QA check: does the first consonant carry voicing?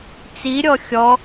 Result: no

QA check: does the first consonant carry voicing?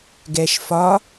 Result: yes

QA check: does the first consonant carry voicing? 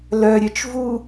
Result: yes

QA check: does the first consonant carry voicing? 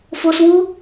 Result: no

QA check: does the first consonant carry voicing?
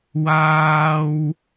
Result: yes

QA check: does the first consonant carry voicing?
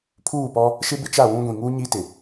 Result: no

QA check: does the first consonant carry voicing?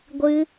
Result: yes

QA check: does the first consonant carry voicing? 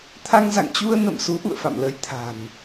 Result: no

